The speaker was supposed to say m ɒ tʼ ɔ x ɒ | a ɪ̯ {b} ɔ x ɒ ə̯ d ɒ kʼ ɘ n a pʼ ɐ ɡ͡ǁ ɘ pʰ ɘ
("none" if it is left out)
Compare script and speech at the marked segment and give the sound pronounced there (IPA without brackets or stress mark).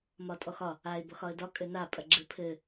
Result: b